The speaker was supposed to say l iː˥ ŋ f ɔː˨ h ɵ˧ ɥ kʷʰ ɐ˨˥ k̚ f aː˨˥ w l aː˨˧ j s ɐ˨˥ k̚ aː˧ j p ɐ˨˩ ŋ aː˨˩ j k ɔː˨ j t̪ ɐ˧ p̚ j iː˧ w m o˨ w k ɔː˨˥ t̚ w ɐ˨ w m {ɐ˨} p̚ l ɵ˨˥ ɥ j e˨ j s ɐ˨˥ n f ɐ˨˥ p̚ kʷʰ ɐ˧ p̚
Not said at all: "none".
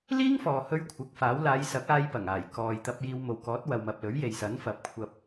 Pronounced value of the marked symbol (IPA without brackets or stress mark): ɐ˨